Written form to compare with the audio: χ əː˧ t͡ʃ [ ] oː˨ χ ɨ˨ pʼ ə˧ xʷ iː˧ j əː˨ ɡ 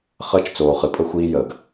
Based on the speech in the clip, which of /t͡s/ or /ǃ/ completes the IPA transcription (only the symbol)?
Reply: t͡s